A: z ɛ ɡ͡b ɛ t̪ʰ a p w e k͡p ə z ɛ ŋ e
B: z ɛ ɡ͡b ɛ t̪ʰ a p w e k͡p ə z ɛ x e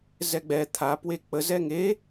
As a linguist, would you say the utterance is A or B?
A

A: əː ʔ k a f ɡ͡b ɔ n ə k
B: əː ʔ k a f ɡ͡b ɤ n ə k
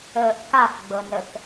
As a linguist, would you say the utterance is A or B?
B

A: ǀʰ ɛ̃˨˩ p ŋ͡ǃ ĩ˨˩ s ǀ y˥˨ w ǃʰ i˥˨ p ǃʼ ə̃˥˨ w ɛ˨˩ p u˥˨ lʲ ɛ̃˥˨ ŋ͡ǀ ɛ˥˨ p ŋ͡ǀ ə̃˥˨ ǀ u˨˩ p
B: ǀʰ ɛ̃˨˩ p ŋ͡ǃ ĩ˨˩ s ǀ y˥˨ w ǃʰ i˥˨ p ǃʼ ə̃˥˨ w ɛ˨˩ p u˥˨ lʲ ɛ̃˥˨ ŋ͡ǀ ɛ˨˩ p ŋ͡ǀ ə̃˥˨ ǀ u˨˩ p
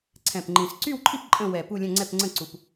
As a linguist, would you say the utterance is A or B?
A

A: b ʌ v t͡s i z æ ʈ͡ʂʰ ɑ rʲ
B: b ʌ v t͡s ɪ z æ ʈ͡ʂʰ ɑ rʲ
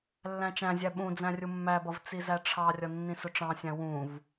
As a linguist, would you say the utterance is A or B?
A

